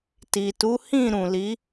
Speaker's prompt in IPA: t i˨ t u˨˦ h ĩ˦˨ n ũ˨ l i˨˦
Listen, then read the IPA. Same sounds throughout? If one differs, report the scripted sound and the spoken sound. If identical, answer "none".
n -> ɾ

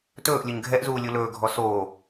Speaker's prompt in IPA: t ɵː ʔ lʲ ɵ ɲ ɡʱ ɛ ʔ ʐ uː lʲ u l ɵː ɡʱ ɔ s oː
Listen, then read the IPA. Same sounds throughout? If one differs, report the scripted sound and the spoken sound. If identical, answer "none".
ʐ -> z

